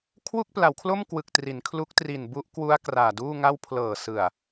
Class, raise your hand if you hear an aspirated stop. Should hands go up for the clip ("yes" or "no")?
yes